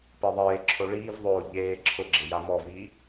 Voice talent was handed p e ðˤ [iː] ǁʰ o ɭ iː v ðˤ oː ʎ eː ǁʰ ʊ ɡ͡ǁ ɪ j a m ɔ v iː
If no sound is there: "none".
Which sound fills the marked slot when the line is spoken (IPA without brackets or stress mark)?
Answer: eː